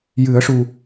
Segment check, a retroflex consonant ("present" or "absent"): present